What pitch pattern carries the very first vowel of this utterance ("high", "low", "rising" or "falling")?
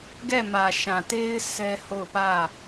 falling